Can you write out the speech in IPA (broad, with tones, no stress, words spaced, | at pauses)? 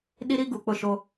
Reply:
ɗi˦ɾi˦ ɡu˨k͡pʊ˦˨ʃo˦